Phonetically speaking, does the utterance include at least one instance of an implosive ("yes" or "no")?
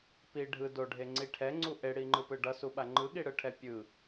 yes